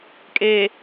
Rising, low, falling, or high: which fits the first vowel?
low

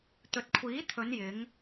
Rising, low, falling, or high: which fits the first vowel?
low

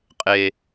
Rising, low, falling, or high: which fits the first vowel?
low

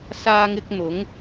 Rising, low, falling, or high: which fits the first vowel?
high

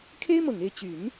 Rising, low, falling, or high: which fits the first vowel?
high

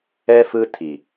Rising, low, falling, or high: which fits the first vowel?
high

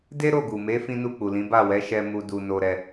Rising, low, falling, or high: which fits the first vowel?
high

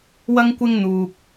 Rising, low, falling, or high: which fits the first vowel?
high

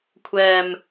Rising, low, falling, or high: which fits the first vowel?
low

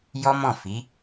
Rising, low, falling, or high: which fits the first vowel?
high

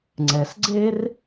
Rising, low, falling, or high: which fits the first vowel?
low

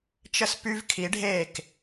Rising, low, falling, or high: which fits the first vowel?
falling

